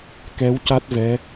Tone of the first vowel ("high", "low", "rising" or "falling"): rising